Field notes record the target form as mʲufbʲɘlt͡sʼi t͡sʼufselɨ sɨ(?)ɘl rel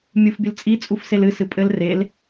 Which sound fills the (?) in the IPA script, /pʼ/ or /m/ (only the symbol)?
pʼ